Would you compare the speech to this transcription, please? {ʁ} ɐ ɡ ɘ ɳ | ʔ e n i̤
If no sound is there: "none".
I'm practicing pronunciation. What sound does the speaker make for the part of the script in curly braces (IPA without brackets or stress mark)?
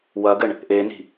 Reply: w